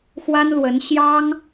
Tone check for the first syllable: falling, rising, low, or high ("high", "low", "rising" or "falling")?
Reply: high